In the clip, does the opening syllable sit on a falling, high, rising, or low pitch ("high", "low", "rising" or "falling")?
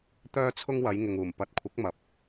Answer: high